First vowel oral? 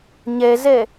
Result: yes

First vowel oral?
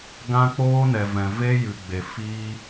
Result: no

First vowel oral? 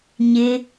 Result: yes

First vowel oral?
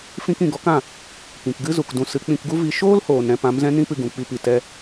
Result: no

